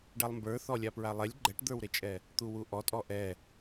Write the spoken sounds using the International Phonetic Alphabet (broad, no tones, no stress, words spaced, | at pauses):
ɖalˠmbə˞ θɔlʲapɹalˠɛlʲ ɡ͡ǃɛʈd̪ə˞wɾet͡ʃʼɛ | t̪uwuʔɔtʼɔ ʔɛ